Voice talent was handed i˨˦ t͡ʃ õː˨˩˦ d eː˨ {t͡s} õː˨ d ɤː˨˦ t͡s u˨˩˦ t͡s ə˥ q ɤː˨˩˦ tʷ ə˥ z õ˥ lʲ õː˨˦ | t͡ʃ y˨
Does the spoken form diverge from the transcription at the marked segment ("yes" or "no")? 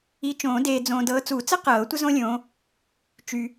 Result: yes